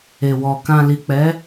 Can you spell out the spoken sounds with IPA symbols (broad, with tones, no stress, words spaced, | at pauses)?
e˨wɔ˨ kã˨li˨k͡pɛ˨˦